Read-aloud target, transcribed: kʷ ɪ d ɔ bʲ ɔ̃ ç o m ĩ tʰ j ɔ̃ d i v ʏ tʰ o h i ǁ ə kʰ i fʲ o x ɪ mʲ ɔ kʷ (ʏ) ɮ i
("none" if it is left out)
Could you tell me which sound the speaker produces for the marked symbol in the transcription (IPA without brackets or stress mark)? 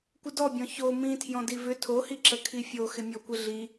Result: ɪ